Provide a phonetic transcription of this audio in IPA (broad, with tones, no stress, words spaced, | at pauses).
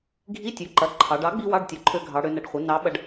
ɡʱi˧˥˧tʲø˩˥ǃɐ˩˧ ǃʰɑ˩˧ɖ ɑ˩˥ɡ͡bi˧ wɑ˧˥˧ɖtʲɐ˩˥ ǃʰø˧ɡʱɑ˩˧ɽø˩˧nɐ˩˧ɖ χʷɐ˩˥ nɑ˩˥ɓɐ˧ɖ